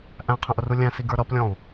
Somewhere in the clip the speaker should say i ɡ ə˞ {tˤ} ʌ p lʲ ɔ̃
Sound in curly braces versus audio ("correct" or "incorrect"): incorrect